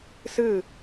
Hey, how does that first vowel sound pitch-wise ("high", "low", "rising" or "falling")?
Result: falling